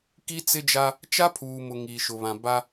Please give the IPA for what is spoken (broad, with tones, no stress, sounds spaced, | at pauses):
k i˦ t͡s ɪ˦ d͡ʒ a˦ | t͡ʃ a˦ pʰ uː˨ m ʊ˨ ŋ iː˨ ʃ ʊ˨ β ã˨ b a˦